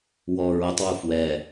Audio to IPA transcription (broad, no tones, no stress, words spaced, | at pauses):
wɔɹotˤ wufwɛ